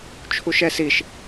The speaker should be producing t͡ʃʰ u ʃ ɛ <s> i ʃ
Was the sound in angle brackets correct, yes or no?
yes